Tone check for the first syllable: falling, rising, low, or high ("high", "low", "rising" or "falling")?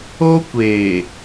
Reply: high